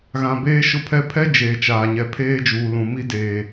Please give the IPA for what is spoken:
ɣ ã˨ b eː˦ ʃ ʊ˦ pʰ ɛ˦ pʰ ɛ˦ d͡ʒ eː˨ t͡ʃ aː˨ ɲ ɛ˨ pʰ eː˦ d͡ʒ uː˨ l ũ˨ m i˦ d eː˨

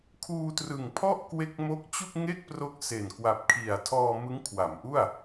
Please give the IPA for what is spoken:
kʰ uː˧ t r ɯ˨˩ ŋ pʰ ɔ˥˩ ʔ k w e˦˥ k̚ m o˦˥ k̚ t͡ɕ u˥˩ k̚ ŋ e˥˩ k̚ p r o˦˥ k̚ s e˨˩ n k w a˨˩ p̚ kʰ i˨˩ a̯ tʰ ɔː˧ m ɯ˦˥ ŋ kʰ w a˩˦ m ʔ u˥˩ a̯

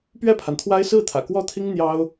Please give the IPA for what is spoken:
p ɥ ɛ˥˩ pʰ a˩ n t̪ʰ w a˥ ɪ̯ s ɹ̩˥˩ t̪ʰ ä̰˨˩ k w ɔ˥ t̪ʰ i˥ ŋ n̪ j ɑ˥ ʊ̯

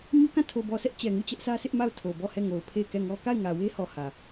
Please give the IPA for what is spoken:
ɲ u˦ k ã˦˨ tʰ o˨ b ɔ˨ sʰ ɛ˦ ʔ t͡ɕ ɛ˨ ŋ u˦˨ t͡ɕ ɛ˦ ʔ s ä˦ s ɪ˦ ʔ m a˦˨ ʊ̯ tʰ o˨ b ɔ˦˨ h ɛ˦˨ ŋ o˨ ʊ̯ pʰ e˦˨ ɪ̯ k ɛ˦˨ ŋ ɔ˦ k a˦˨ ɪ̯ ŋ ä˨ w e˦ h ɔ˨ h ä˨

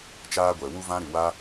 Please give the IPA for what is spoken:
t͡ʃ aː˦ ɡʷ ɛ˨ w u˦ v ã˦ ɾ ɨ˨ w a˦

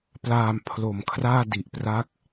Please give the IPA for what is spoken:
p l aː˨˩ m pʰ l o˨˩ m kʰ r aː˥˩ d i˨˩ ʔ p r a˦˥ k̚

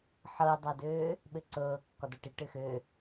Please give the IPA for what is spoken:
ħ ɤ dˤ a d øː | ɓ ɘ ǀ ɤː kː ɒ d ɒ ʈ i ʈ ɘ x ø

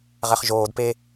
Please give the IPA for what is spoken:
ʁ ɛ χ ʒ oː d p e

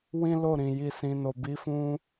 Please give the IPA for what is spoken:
w ĩ˦ l o˦˨ ɾ ĩ˨ j i˨ s ĩ˨ n o˨ b i˨˦ f ũ˧

